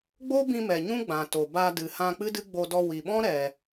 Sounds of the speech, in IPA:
ɡ͡b o˦ b ĩ˧ m ɛ˨ ɲ ũ˦ ɡ͡b ã˨ t o˨ b a˧ d ɨ˨ h ã˧ k͡p ɨ˦ d ɨ˦ ɡ͡b o˧ d ɔ˧ w i˨ ɓ ɔ̃˦ ɾ ɛ˨

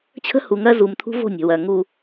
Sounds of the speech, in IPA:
t͡ɕʰ ə̤˦ h u˨ ŋ ɜ˦ z u˨ m t̪ʰ ṳ˦ v o̤˦˨ nʲ ə̤˨ w ɜ˨ ŋ u˨

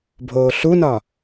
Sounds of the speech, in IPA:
bʱ oː ɬ u n ɒ

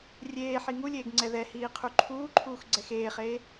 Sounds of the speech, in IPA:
rʲ eː ħ i ŋ u lʲ eː ɡ ŋ͡ǀ ɛ ð ɛ h iː qʰ u ǃʰ uː ǃʰ uː x ɡ͡ǀ ɛ x eː χ eː

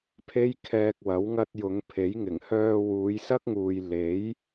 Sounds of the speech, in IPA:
pʰ e˥ j kʰ ɛː˧ k̚ w ɐ˨˥ w ŋ ɐ˧ t̚ j ʊ˨˧ ŋ pʰ e˨˥ j ŋ ɪ˨˩ ŋ h œː˧ w uː˨˧ j s ɐ˥ k̚ ŋ uː˨ j l e˨˥ j

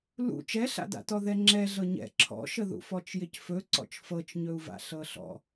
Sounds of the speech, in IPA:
l ṵ t͡ʃ ɛ ɬ a̰ d a̰ t ɔ ð ɛ ŋ͡ǁ ɛ ɮ ɤ ɲ ɛ̰ ǁʰ ɔ̰ ʃ ə ð ṵ f ɔ t͡ʃ j ɪ c f ɵ ǀ ɔ̰ t͡ʃ f ɤ t͡ʃ ɲ ɵ u̯ v a̰ ɬ ɤ ɬ ɔ̰

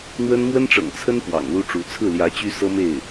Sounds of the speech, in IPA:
n̪ w ə˥ n m w ə˥ n ʈ͡ʂ ɤ̰˨˩ ŋ t͡sʰ ə˥ n p w ɑ̰˨˩ ŋ l u˥ ʈ͡ʂ u˧˥ t͡sʰ ɹ̩˥˩ l j ä˧˥ t͡ɕ y˥ s ɤ˥ m e˥˩ ɪ̯

